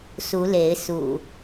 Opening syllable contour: rising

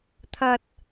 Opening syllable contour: low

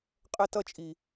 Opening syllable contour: high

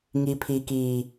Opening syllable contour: low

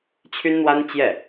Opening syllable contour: high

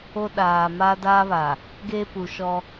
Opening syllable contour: high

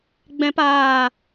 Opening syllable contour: high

